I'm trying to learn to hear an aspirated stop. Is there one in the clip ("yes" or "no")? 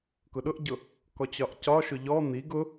no